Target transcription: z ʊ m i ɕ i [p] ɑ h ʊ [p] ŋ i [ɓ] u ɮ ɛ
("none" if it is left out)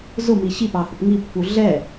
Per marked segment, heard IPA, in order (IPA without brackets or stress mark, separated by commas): p, p, pː